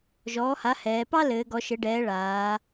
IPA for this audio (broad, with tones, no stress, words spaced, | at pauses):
ʒɔː˩˥ha˩˥hɛː˩˧ pɑ˥lɘː˩˧ ɡɔ˩˧ʃɘ˩˧ɖɛː˩˧ ɭaː˩˧